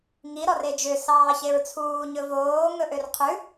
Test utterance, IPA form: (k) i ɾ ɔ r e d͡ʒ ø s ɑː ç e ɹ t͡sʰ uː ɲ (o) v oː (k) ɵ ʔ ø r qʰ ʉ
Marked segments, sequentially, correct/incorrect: incorrect: ŋ, incorrect: ɵ, incorrect: ŋ

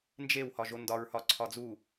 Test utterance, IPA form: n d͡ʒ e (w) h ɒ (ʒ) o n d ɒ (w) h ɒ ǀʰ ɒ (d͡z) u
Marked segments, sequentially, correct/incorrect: correct, correct, incorrect: ɹ, correct

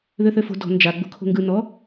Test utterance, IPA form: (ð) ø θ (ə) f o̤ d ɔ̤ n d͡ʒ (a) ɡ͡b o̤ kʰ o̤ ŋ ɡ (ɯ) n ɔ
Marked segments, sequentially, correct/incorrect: correct, incorrect: ø, correct, correct

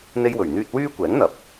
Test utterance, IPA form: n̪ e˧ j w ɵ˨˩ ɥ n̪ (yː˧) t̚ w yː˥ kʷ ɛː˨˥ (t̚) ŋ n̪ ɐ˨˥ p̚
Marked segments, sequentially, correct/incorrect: correct, incorrect: none

